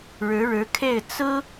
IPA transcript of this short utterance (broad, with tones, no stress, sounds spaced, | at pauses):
ɻ ɻ̩˧˥ ɻ ɻ̩˧˥ kʰ e˥˩ ɪ̯ t͡s ɹ̩˥